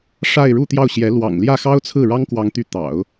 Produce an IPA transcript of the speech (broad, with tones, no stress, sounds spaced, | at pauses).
ʂ a˥˧ ɪ̯ ɻ u˥˧ t̪ j ɑ˥˩ ʊ̯ ɕ j ɛ˧˥ l w ɑ̰˨˩ ŋ l j ä˥˩ x ɑ˥ ʊ̯ t͡sʰ ɹ̩˥˩ ɻ ɑ˥ ŋ k w ɑ˧˥ ŋ t̪ y˧˥ t̪ ɑ̰˨˩˦ ʊ̯